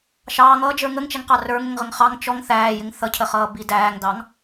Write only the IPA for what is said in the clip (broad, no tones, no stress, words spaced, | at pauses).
ʃɑːŋʌːd͡ʒə˞ ŋəŋt͡ʃɛŋqɑ rə˞ŋəŋʁəŋ χɑŋ t͡ʃɔŋ θæːjɪŋ θʌcʰəχʌːbi dæːŋdɑŋ